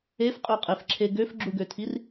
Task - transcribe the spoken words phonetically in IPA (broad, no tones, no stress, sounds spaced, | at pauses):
e f qʼ ø qʼ e f ǁʰ e ɡ ø f ɡ͡ǁ u ɡ ø tʰ i r